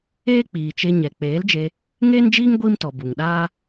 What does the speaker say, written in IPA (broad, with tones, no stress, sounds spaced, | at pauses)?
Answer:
eː˦ k͡p iː˨ t͡ʃ e˧ ɲ ɛ˨ k͡p eː˨˦ l d͡ʒ e˧ | ŋ eː˦ n d͡ʒ iː˦ ŋ ɡʷ iː˦ m t ɔ˨ b u˨ ŋ ɗ aː˦